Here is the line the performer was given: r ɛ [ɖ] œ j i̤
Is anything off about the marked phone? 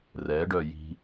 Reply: no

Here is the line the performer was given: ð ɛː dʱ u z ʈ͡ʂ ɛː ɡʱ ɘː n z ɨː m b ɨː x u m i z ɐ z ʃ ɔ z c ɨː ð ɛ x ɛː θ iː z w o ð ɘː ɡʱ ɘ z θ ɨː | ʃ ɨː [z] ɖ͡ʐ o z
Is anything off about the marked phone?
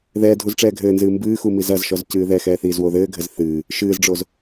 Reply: no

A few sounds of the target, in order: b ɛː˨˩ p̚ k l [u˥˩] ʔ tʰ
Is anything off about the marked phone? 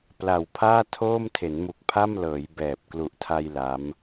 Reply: yes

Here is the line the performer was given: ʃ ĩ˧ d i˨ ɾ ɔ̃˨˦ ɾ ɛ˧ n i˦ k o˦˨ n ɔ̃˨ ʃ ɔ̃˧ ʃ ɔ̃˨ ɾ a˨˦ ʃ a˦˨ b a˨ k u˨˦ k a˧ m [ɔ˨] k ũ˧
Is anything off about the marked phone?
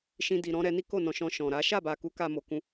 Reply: yes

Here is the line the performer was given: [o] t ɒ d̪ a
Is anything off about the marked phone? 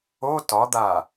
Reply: no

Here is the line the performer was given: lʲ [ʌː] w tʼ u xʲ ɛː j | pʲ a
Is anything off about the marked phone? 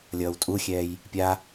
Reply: no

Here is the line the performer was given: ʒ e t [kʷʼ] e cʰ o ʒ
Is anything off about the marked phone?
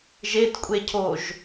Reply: no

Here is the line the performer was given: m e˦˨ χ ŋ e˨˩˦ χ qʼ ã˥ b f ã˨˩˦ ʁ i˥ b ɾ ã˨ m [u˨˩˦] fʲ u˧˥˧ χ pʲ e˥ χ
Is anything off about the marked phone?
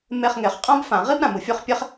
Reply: no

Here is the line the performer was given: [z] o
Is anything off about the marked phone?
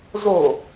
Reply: no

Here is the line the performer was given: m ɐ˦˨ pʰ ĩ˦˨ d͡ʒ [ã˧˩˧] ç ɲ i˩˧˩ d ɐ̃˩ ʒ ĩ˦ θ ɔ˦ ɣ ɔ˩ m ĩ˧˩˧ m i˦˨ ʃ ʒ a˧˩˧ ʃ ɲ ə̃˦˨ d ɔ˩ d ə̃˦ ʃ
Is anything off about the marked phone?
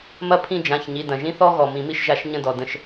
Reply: yes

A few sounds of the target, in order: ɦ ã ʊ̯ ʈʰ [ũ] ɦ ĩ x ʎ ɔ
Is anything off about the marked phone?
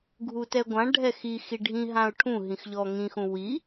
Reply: no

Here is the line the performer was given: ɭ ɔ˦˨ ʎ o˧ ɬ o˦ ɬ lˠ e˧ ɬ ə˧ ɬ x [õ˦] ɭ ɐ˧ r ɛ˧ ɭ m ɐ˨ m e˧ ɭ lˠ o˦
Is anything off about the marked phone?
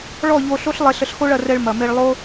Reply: yes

